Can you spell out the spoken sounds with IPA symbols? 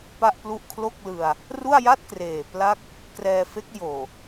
p a˥˩ ʔ p l u˥˩ ʔ kʰ l o˥˩ k̚ l ɯ˧ a̯ | r u˥˩ a̯ j a˥˩ t̚ k r eː˨˩ p l a˥˩ k̚ | k r ɛː˧ f e˦˥ k̚ j oː˨˩

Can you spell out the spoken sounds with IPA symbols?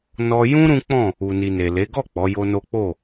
n ɔ˧ j ũ˦ ɾ ũ˦ k͡p ɔ̃˦˨ | u˨ n i˨ n e˨ l e˨˦ ɡ ɔ˦˨ k͡p ɔ˨˦ j o˦ n o˦ k͡p o˦˨

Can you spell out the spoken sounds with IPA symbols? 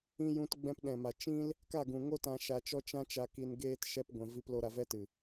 ĩ˧ j ũ˧ t ɡ͡b ɛ̃˧ p ɗ ɛ̃˨ m a˨ t͡ʃ ĩ˦ l | k a˦˨ ɡ ũ˨ ŋ o˦ t ã˧ ʃ a˧ t͡ʃ ɔ˦ t͡ʃ ã˦ t͡ʃ a˧ k i˧ n ɡ eː˦ t ʃ ɛ˦ p ɡʷ ɛ̃˧ v i˦ p l o˦ ɾ a˧ v ɛ˦ t ɨ˨

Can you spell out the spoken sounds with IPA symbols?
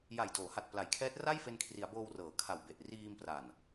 j a˨˩ j d oː˩˦ h a˨˩ t̚ p l a˩˦ j kʰ ɛː˦˥ t̚ r a˥˩ j f e˧ n kʰ r i˩˦ a̯ b oː˧ w r ɤː˩˦ kʰ a˨˩ w b e˨˩ ʔ r iː˧ m p r a˨˩ n

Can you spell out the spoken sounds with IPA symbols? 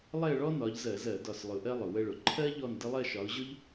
lˠ ɛ˥˧ ə̯ ɭ ɔ˥ n ɒ˨˦ ʎ z ɜ˧˩˧ z ɜ˧˩˧ d ɒ˧˩ s lˠ ʊ˨˦ ʔ ɜ˥ lˠ ʊ˩ w ə˥˧ ɭ ʊ˩ ǃʰ ɜ˥ ʎ ɔ˥˧ n d ə˥ lˠ ɜ˥˧ ʃ ɒ˨˦ ʊ̯ ʑ ʊ˥ ʎ

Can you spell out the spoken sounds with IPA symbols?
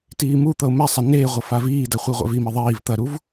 t iː m u t̪ ʌ ʊ̯ m ɛ sˤ ɐ n eː ʁʷ ɐ f a v iː d ɐ χʷ i ʁʷ ɛ̰ v i m i ðˤ iː v t̪ ɐ ɾ u v

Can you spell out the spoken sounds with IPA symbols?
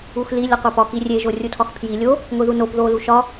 u x l i lʲ ɒ qʷ æ p ɒ k i rʲ e ʒ o rʲ u tʰ ɒ x pʰ j i lʲ o | ŋʷ i ð u n o p ð o l u ʃ ɒ

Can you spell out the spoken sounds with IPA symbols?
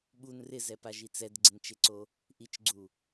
ɓ u n r ɪ z ɛ p a ʒ i t͡s ɛ d ɡ͡ǀ ɪ n t͡ʃ e ǀ o | ʔ i t͡ʃ ɡ͡ǀ u

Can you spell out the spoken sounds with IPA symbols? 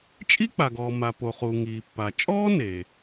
t͡ʃʼ i˥ k͡p a˩ ɡ ɔː˩ m a˩ p o˩ χ uː˩ ŋ iː˩ pː a˩ t͡ʃʼ ɔː˥ n e˩

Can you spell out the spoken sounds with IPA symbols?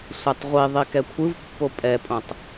sʷ ɛ tˤ ʁʷ i ðˤ i k ɛ kʷʰ ɯ v pː o pʼ ɛ pʼ õ tˤ

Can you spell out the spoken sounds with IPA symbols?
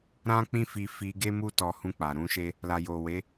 ɾ ã˦ k͡p ĩ˦ f i˧ f i˧ ɡ e˦ m u˦ t ɔ˧ h ũ˧ k͡p a˨ ɾ ũ˨˦ ʃ e˦ | l a˨ j o˨ w e˨˦

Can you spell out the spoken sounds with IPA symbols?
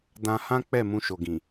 d ã˧ h ã˦ k͡p ɛ˦˨ m ũ˧ ʃ o˨ ɡ ĩ˨

